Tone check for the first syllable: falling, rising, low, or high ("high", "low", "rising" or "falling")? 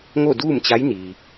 falling